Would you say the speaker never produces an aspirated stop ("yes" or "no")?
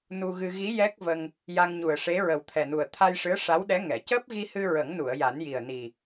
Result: no